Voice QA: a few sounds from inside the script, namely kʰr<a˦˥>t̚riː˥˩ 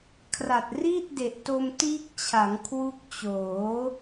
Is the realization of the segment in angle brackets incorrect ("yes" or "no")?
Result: yes